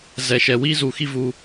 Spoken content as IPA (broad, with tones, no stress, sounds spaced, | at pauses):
z ɛ˨ ʃ ɛ˨ w i˦ z uː˨ x i˦ v uː˧